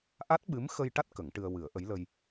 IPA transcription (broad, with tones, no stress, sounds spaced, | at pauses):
ʔ a˦˥ t̚ ɓ ɨ˧˥ m x ə˧ j ʈ a˦˥ t̚ k ə˨˩˦ ŋ ʈ ɨ˧ ə̯ w ɨ˨˩˦ ə̯ ʔ ə˧˥ j l ə˧ j